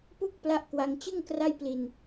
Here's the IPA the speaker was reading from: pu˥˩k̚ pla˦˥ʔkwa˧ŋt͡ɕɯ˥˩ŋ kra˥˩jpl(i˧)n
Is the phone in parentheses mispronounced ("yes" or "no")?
no